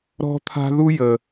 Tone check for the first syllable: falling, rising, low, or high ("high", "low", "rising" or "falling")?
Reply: high